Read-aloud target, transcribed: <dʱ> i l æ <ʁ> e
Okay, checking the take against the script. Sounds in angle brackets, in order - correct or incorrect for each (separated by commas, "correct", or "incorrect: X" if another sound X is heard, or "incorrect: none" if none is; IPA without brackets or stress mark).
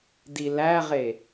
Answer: incorrect: d, correct